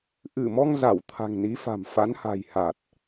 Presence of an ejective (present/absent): absent